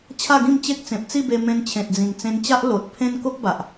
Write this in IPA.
t͡ɕʰ a˥˧ ɡ ĩ˥˧ m t͡ɕ e˦ k̚ t͡s ẽ˨ p̚ t͡s i˥˧ b e˧ m ẽ˧ n t͡ɕʰ ẽ˨ t̚ d͡z ĩ˨˩ ŋ t͡s ẽ˧ n t͡ɕ a˦ ʔ l o˨ t̚ pʰ ẽ˦ n k o˦ k̚ b a˨ ʔ

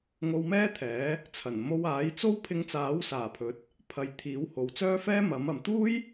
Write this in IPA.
ŋ o˧ w m ɛː˥ t̪ʰ ɛː˨˥ | t͡sʰ ɐ˨˩ n m o˧ w aː˨˥ j t͡s o˥ w pʰ ɪ˧ ŋ t͡s aː˨˥ w s aː˨˩ pʰ ɵ˨˥ t̚ | pʰ ɐ˨˧ j t̪ʰ iː˨˥ w h o˨ w t͡s œː˥ f ɛː˥ m ɐ˨˥ m ɐ˨ m t̪ uː˥ j

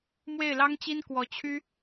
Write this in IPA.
m w e˥˩ ɪ̯ l ɑ˥ ŋ t͡ɕ i˥ n k w ɔ˧˥ t͡ɕʰ y˥

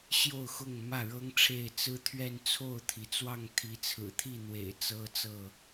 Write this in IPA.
ɕ j o˥˨ ʊ̯ x ʊ˥˨ ŋ m ä˥˨ ɻ ɤ˦ ŋ ʈ͡ʂʰ e˥˨ ɪ̯ t͡s ɹ̩˦ t̪ʰ ɥ ɛ˥˨ n t͡sʰ o˥˨ ʊ̯ t̪ʰ i˩ t͡s w ɑ˥˨ ŋ t̪ʰ i˨˦ t͡sʰ ɹ̩˨˩ t̪ʰ i˥˨ n̪ w ḛ˨˩ ɪ̯ t͡s ɤ˦ t͡s ɤ˥˨

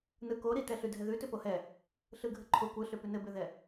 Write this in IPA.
n ɯ k o ɾ i t ɛ ɬ ʉ dʱ ɛ ð ʉ t ʏ p o h ɛ | ɬ ɯ ɡʱ ɘ ǃʰ o kʷ ɯ ɬ ʏ p ʉ n ɘ b ʏ ð ɛ

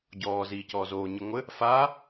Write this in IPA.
ɟ ɔː z iː c ɔː z oː ɲ ɨ ŋʷ ɘ | f aː

